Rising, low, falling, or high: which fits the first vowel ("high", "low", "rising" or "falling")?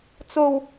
high